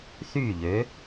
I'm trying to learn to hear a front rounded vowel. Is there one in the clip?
yes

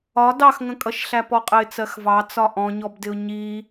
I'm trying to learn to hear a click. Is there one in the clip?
no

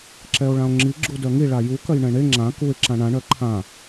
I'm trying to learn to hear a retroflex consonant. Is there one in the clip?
yes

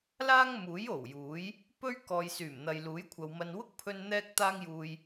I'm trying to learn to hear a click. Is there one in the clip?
no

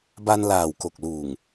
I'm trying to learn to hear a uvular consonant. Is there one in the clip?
no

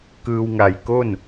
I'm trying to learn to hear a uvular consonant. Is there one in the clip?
no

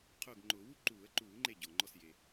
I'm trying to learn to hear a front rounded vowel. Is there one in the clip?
no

